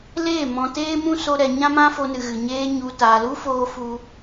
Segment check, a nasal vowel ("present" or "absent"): present